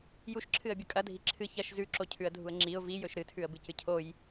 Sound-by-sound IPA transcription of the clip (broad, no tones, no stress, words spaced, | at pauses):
juʃǁʰɨə̯bʲɵ kʼɐdʱi ǁʰɨ çɐʃ zʉǁocʰʉə̯dʱuə̯ ŋ͡ǁiʊ̯ vijɵʃ ɾɨtʰʉə̯bɨcɨ cʰoj